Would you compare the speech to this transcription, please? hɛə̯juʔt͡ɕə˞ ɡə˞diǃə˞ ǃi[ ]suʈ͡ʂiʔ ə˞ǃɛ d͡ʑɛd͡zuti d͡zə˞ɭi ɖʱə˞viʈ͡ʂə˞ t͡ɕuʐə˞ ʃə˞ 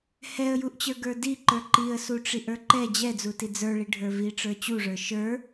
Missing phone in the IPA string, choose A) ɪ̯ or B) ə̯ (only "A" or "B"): B